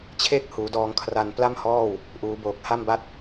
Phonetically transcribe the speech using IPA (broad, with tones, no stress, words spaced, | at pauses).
t͡ɕʰe˦˥k̚ huː˩˦dɔː˧ŋ kʰra˧n pla˥˩mhɔː˥˩w | ʔuː˩˦ boː˨˩k̚ha˥˩mba˥˩t̚